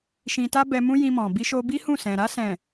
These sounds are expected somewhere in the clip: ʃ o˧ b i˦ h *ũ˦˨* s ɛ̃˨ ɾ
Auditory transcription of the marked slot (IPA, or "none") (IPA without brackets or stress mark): ũ˦˨